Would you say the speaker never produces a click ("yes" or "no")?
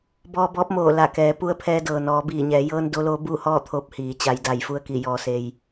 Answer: yes